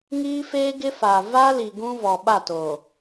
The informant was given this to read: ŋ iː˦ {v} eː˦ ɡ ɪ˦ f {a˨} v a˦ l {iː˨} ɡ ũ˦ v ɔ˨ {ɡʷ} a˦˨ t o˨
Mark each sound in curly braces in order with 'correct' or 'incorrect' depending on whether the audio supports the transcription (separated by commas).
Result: incorrect, correct, incorrect, incorrect